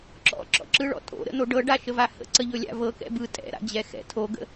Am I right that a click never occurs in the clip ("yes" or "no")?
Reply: no